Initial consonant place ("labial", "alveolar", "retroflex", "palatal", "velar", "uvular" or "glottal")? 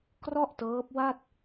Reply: velar